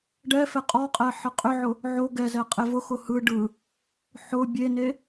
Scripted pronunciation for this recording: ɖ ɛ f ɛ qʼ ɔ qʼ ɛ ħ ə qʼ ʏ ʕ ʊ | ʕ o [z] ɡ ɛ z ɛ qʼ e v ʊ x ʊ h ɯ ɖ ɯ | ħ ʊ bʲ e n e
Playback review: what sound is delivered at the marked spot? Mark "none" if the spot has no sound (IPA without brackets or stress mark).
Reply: none